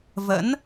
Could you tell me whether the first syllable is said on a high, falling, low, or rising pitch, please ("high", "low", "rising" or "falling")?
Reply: rising